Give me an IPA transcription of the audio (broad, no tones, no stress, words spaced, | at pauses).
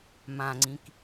mãŋ͡ǀĩk